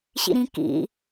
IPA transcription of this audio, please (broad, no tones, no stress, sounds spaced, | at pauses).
ɕ ḭ ɾ ĩ k ḭ